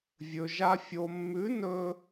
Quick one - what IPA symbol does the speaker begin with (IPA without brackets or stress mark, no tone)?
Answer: vʲ